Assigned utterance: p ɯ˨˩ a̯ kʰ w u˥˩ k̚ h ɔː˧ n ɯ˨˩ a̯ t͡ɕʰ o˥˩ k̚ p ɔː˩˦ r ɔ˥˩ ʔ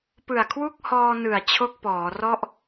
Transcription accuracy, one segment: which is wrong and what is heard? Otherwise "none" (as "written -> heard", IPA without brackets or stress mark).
none